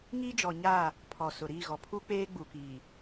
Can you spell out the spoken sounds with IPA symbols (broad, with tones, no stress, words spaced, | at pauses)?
ŋi˦ d͡ʒɔ˨ɲaː˦˨ | pʰɔ˨sʊ˨ ɾiː˦˨ɣɔ˨ pʰu˦k͡peː˦ɡ͡bu˨ kiː˨